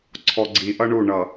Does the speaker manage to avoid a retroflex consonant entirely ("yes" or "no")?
no